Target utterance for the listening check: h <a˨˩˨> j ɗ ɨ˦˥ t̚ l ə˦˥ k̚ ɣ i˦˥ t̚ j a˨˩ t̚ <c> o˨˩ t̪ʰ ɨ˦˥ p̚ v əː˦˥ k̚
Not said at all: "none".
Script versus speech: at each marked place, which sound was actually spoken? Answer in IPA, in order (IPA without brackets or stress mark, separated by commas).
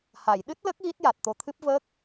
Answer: a˨˩˨, t̪